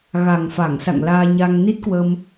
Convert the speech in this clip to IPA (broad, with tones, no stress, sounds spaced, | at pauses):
ɣ a˨˩ ŋ f a˧˩ ŋ s a̰˧˨ ŋ l aː˧ ɲ a˧ ŋ n i˦˥ t̚ k w ə˧ m